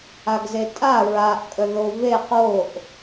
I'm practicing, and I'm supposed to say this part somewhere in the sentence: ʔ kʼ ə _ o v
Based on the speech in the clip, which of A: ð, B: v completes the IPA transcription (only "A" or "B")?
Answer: A